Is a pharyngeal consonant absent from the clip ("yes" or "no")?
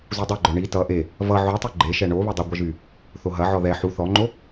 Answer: no